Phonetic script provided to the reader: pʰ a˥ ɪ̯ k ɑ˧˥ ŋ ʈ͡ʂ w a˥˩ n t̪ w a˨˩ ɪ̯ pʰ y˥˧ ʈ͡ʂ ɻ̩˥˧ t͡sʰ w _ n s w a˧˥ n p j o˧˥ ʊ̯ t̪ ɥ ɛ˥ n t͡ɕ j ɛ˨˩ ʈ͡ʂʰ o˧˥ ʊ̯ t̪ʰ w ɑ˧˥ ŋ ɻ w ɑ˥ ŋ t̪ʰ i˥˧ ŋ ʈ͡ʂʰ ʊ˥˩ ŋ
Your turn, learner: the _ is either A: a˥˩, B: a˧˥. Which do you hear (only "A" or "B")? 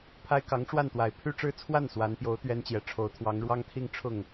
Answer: A